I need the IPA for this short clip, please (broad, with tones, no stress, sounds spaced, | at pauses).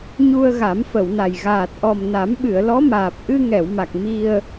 ɲ u˧ ə̯ ɣ a˨˩˦ m f ə˨˩˨ w n a˨˩ j ɣ aː˨˩ t̚ ʔ ɔ˨˩ m n a˨˩˦ m ɓ ɨ˨˩˨ ə̯ l ɔ˧˥ m aː˨˩ p̚ ʔ ɨ˧ ŋ ɛ˨˩˨ w m a˨˩ k̚ m i˧ ə̯